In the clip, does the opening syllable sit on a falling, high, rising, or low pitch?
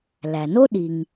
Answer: low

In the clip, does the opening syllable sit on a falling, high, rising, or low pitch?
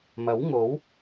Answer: rising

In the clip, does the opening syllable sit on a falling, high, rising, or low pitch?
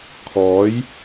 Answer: rising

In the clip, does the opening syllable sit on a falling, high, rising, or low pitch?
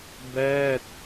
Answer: falling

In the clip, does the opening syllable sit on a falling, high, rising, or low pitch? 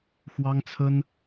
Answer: high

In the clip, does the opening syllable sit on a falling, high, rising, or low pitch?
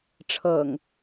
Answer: low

